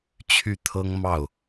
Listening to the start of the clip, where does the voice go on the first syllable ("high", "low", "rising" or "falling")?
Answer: falling